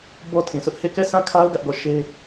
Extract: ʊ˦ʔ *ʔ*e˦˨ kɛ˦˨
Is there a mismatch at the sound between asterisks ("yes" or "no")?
yes